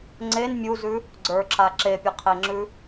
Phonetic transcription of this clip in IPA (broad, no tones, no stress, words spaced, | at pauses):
ŋ͡ǀen mʲuzʉ | ɡ͡ǀə˞ǁa ǁepʲɐqʰeŋ͡ǁʉ